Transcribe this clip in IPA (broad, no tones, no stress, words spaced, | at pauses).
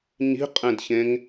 ɲi̤qʼẽdçẽŋ